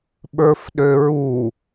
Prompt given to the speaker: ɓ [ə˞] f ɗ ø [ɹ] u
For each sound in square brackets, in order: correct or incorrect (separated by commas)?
correct, correct